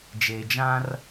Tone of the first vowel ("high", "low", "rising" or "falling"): low